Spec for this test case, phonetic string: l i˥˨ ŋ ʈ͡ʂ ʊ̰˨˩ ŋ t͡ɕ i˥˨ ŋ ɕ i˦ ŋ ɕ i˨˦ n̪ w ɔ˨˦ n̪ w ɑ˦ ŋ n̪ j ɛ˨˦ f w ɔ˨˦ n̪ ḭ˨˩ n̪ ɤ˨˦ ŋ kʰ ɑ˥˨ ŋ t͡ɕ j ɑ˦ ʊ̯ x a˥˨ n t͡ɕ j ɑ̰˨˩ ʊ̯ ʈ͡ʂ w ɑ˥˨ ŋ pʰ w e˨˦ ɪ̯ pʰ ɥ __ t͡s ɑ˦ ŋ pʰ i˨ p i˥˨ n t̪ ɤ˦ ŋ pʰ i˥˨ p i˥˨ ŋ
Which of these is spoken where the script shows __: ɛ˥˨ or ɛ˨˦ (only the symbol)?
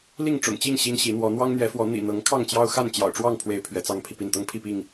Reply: ɛ˨˦